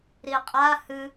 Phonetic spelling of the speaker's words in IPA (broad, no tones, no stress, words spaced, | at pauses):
ɾiqʼa hɨ